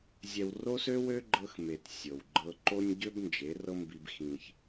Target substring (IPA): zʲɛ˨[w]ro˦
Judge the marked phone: correct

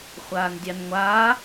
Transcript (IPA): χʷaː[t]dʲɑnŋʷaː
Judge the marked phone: incorrect: n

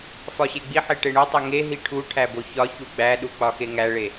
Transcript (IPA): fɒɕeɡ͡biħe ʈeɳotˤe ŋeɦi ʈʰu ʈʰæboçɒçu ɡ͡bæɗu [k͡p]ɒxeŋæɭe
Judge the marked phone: correct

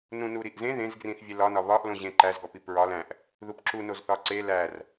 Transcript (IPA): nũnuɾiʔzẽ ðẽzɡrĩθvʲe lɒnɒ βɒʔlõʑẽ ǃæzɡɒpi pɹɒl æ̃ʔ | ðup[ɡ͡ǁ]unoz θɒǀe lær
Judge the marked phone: incorrect: ǁ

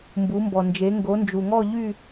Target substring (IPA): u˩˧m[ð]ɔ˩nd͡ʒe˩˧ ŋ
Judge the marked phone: incorrect: b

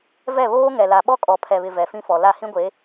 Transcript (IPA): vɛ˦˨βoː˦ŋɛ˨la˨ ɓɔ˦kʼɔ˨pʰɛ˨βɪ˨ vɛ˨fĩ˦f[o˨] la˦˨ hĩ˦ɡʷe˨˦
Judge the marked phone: incorrect: ɔ˨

